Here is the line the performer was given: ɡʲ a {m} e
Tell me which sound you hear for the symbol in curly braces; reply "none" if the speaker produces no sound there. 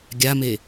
m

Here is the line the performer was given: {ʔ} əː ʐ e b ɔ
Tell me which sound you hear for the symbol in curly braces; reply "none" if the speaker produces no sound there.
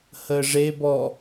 h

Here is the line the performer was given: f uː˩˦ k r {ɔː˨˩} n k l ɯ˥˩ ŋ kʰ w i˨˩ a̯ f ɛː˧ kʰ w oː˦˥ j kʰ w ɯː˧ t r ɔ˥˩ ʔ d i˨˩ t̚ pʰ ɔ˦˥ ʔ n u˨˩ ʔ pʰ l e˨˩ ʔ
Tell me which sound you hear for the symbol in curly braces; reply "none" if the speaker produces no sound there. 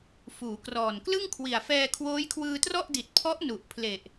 ɔː˨˩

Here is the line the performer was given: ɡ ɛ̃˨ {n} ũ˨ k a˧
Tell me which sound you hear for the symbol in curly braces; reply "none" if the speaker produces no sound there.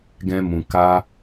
m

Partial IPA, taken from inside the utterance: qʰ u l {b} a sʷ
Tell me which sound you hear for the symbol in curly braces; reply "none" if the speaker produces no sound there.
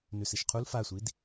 f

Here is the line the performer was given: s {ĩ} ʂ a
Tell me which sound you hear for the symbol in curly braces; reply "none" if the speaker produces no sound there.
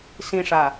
ĩ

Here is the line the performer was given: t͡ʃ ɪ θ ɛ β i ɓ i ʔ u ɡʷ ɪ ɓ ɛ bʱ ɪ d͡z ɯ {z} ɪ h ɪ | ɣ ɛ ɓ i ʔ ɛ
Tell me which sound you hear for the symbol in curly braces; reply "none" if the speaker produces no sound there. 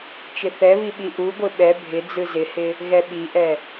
z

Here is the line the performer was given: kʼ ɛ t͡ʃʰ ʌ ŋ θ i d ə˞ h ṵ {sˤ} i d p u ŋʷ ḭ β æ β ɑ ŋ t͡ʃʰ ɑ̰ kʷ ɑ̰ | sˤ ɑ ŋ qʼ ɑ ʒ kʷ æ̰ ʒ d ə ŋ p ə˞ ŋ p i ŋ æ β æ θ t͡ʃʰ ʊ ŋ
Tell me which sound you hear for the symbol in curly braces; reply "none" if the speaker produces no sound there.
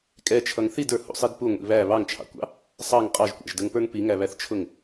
sˤ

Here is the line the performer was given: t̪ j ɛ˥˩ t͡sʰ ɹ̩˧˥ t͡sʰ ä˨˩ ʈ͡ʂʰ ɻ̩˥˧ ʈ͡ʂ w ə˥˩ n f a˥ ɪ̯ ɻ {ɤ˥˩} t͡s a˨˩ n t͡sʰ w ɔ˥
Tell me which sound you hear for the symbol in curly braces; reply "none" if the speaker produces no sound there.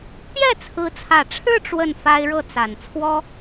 ɤ˥˩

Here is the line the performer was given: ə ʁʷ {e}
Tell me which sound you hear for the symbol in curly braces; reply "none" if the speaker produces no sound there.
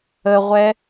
ɛ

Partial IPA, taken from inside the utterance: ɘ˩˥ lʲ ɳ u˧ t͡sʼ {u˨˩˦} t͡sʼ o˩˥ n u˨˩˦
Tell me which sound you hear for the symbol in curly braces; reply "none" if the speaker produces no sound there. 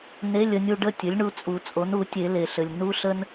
u˨˩˦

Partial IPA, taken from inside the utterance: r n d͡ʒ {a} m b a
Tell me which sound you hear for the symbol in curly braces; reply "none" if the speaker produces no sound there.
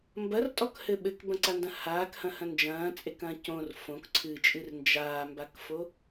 aː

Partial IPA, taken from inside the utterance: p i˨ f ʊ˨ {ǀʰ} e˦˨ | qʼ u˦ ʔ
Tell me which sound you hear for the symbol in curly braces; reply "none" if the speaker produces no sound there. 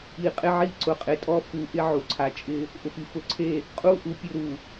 ǀʰ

